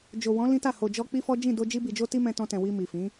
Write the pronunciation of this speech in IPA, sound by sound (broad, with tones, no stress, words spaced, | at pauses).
d͡ʒo˨wɔ̃˨˦ lĩ˦ta˦˨ ho˨ d͡ʒɔ˧ k͡pi˦fɔ˦d͡ʒĩ˦˨ do˧d͡ʒi˧bi˨d͡ʒo˧ ti˦mɛ̃˧tɔ̃˧tɛ̃˨ wi˧ mi˨fĩ˨˦